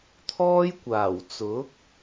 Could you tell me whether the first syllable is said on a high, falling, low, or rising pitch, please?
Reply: high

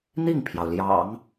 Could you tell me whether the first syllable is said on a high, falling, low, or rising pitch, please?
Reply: falling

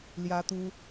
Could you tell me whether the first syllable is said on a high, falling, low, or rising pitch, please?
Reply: high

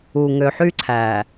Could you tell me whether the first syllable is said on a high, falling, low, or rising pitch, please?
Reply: low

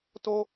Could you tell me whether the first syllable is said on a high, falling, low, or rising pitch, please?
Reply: high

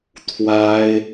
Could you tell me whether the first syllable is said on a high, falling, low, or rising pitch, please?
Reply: high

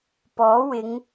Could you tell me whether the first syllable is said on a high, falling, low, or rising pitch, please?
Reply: rising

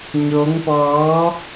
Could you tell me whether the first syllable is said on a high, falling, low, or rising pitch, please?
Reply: rising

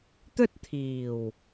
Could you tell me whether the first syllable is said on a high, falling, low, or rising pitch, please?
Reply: high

